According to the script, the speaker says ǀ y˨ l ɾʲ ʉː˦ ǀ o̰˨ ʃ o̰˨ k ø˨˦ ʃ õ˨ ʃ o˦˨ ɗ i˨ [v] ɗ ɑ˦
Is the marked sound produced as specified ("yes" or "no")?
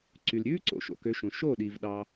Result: yes